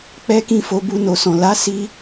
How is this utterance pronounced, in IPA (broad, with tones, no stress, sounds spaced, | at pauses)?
k͡p ɛ˦ k ĩ˦˨ f o˧ b u˧ n o˨ s ɔ̃˨ l a˨˦ s i˧